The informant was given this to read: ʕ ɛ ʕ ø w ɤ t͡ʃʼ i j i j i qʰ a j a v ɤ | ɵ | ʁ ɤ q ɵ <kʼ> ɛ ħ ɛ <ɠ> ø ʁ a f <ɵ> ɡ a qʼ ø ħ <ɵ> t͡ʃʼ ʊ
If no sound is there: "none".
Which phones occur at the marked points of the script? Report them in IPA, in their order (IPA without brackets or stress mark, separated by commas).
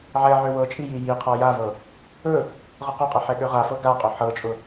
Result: qʼ, ɠ, ɤ, ɤ